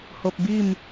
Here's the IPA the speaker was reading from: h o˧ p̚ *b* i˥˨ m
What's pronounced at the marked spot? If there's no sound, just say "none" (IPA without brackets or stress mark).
b